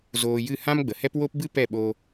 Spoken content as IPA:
z oː˧ j ɨ˦˨ h ã˦ m ɡ͡b ə˨ h ɛ˦ p w o˦ p b ɨ˦ p ɛ˦˨ ɓ o˧

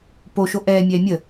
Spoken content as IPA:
p o ʃ o ʔ ɛː mʲ ɛː mʲ ə

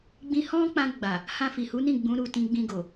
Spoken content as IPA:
ɡ͡b ĩ˧ h ɔ̃˦ k͡p ã˧ ɡ͡b a˨ | h ã˧ f i˨ h u˨˦ n ĩ˦˨ ɡ͡b ũ˨˦ ɾ u˦˨ t ĩ˧ ɡ͡b ĩ˧ ɡ o˨

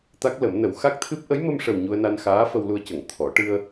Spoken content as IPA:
t̪ a˦˥ k̚ l ə˨˩˦ m n ə˨˩˦ w x a˦˥ k̚ t̪ʰ ɨ˦˥ p̚ ʔ ə˧˥ j m ə˧ m ʂ ə˨˩ w ɲ u˧ ə̯ n a˧ n x aː˧˥ f ə˧ w l u˧ ə̯ c ə˨˩˨ ŋ t̪ʰ ɔ˨˩˦ ʈ ɨ˧ ə̯

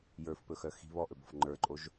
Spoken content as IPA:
j ə˞ f p ɵ x œ x i̤ β ɔ ʔ ɵ b ɔ̤ f ŋ͡ǃ ə˞ ǃʼ o ʒ

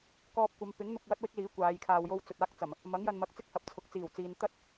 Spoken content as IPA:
k ɔː˧ p̚ kʷ ɐ˨˧ m p ɪ˨˥ ŋ n̪ ʊ˨ k̚ w ɐ˥ t̚ w ɪ˥ k̚ l iː˨˥ kʷ aː˨˧ j kʰ aː˧ w j o˥ w t͡s ɵ˨ t̚ aː˥ k̚ t͡s ɐ˨˩ m | m ɐ˨˥ ŋ j ɐ˨ n m ɐ˨˥ k̚ t͡s ɪ˥ k̚ h ɐ˨ p̚ t͡sʰ ʊ˨ k̚ t͡s iː˨˩ w t͡s iː˨ n t̪ ɐ˥ t̚

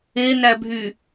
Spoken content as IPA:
e n æ bʱ y

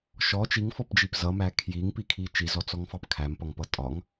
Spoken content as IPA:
ʃ ɔ t͡ʃ i ŋ f ɔ p d͡ʒ i p z ʌ m æ kʰ j i ŋ p i kʰ i t͡ʃ i z ɔ t͡s ɔ ŋ f ɑ p kʰ æ m p ʌ ŋ p ʌ tʼ ɒ ŋ

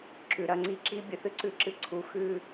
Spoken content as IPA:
ǁ ʉ˨ ɾ ɐ˧ ŋ͡ǀ i˧ ǁ i˧ bʲ ɨ˨ θ ɨ˦ ǀ ʉ˧ ǁ ɨ˧ ǀʰ u˨˦ x ʉ˧

